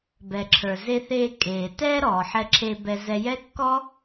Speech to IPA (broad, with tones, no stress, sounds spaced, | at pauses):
b ɛ˩ ǁʰ ə˞˩ z e˧ θ eː˧ kʼ eː˩ t ɛː˥ ɾ ɔː˩ ħ ɛ˧ ǁʰ eː˧ b ɛ˧ z ɛ˧ j ɛ˥ kː ɔ˥